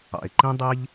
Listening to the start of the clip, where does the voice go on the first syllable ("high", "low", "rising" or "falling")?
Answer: low